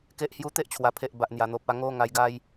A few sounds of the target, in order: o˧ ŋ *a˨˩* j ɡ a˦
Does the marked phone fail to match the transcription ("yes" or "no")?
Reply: yes